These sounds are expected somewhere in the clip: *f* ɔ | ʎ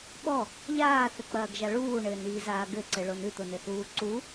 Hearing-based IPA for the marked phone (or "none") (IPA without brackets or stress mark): ɓ